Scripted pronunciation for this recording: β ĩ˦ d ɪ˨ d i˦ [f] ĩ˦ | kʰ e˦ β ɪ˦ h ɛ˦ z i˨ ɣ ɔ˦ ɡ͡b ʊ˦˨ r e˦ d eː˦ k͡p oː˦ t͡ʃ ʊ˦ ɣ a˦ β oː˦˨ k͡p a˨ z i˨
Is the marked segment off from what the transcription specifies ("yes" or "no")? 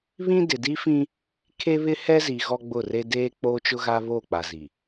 no